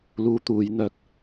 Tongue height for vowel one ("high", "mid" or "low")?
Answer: high